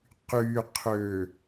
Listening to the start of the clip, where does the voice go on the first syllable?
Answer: low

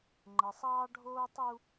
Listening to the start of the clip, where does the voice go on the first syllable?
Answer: low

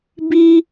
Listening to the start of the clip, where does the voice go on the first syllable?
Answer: high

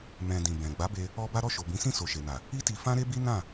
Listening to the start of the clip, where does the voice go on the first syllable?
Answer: low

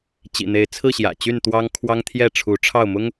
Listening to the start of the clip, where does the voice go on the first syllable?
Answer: low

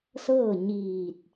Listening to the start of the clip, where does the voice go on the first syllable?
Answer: falling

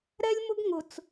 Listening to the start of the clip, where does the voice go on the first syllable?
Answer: high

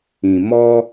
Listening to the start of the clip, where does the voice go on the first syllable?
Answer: low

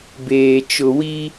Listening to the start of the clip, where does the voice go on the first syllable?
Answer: low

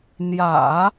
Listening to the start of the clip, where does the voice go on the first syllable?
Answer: low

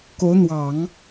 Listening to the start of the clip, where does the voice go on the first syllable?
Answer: rising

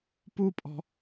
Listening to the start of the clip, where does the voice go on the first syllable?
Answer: high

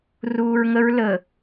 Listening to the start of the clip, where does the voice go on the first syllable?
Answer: low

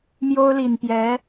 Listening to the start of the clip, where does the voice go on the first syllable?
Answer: high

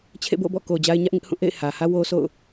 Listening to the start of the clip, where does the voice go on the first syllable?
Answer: falling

